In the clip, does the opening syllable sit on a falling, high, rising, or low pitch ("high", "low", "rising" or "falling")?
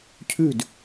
falling